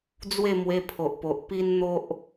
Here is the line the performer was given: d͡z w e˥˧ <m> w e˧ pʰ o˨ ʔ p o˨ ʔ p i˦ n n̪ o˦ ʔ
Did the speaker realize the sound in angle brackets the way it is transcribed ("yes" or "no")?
yes